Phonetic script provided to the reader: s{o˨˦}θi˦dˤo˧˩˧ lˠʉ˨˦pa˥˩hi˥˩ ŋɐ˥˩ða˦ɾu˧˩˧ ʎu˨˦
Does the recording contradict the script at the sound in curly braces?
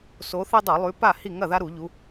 no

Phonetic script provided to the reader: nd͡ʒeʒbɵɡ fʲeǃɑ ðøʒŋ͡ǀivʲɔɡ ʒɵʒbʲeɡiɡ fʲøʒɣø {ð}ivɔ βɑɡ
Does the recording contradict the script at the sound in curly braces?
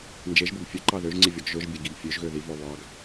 no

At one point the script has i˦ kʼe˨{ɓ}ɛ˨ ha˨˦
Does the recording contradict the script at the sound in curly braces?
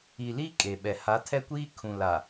no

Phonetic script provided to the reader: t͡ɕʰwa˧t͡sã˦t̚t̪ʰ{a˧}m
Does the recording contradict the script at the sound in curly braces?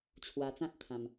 yes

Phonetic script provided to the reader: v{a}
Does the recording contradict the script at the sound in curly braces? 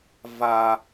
no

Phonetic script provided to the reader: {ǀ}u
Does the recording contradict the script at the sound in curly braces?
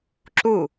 yes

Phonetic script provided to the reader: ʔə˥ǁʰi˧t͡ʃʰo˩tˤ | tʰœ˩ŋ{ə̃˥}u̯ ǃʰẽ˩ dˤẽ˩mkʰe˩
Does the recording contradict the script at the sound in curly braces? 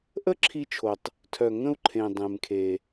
yes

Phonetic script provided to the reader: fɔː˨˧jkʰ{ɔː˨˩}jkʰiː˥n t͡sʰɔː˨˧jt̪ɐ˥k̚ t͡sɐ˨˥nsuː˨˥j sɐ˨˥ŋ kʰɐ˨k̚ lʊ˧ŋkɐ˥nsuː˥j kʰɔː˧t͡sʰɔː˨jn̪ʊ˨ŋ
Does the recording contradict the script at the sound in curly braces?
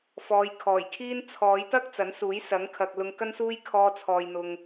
no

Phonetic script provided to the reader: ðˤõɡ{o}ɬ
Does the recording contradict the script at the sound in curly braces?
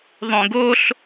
no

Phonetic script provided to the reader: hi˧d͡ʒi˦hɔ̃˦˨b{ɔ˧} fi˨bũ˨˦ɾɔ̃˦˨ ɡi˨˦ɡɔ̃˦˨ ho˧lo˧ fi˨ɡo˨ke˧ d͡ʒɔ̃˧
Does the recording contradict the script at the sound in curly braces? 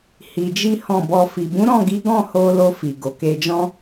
no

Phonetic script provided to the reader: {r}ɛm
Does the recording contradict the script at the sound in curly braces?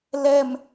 yes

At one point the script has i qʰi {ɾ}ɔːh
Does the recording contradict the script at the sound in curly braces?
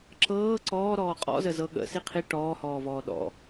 yes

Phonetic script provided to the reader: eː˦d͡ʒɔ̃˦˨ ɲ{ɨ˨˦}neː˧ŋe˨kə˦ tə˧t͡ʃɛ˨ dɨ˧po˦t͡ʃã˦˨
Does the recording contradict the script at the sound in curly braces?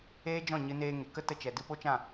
yes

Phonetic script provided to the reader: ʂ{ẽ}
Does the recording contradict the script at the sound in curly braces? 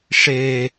yes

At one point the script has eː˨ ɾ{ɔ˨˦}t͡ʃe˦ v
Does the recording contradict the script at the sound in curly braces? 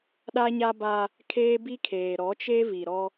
no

